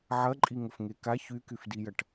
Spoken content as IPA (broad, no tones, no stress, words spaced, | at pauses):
ʕɐǃʼiŋəfŋe ka çykyfdijɐʈ